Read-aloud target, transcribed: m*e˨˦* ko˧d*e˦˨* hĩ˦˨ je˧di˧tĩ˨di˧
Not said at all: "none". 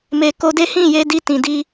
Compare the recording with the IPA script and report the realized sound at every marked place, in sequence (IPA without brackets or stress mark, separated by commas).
e˧, e˦